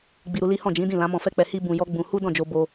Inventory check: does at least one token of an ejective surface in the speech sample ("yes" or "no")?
no